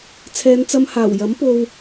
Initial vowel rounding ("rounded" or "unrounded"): unrounded